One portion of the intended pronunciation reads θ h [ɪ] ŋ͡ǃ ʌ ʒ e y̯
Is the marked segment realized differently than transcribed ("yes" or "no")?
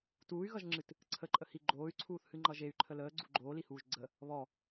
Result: yes